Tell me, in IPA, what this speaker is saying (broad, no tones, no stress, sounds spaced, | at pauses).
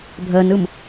bʱ əː n ɯ m